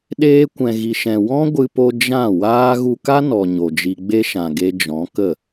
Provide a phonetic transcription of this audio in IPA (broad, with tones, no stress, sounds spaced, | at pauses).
ɗ eː˧ kʷ ɛ̃˨ ɣ i˨ ʃ ɛ̃˨ w ɔ̃˦ ɡʷ ɨ˧ p o˧ d͡ʒ ã˦˨ w aː˦ ɣ u˧ k a˦ n ɔ˨ ɲ o˨ d͡ʒ i˧ ɡ͡b e˧ ʃ ã˨ ɡ e˧ d͡ʒ ɔ̃˨˦ k ə˦˨